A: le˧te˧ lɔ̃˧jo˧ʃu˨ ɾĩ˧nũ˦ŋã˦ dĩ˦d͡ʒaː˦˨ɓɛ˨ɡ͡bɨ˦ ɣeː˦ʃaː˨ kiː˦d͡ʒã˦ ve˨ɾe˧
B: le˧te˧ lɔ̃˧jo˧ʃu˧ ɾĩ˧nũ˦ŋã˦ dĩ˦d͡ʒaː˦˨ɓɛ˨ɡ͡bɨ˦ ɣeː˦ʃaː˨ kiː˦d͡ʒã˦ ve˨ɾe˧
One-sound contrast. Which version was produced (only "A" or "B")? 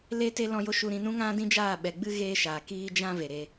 B